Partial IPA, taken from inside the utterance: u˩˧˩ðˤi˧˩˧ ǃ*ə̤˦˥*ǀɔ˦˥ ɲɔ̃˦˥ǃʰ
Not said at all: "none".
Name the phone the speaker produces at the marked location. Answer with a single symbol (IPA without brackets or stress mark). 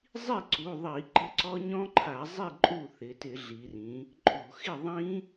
ə̤˦˥